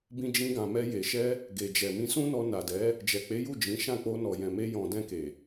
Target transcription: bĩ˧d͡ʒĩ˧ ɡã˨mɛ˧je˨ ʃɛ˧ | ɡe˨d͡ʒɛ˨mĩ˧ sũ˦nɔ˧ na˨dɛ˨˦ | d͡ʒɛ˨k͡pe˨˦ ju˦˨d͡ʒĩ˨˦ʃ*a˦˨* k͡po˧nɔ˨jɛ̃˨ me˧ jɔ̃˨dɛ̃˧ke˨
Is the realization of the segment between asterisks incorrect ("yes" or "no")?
yes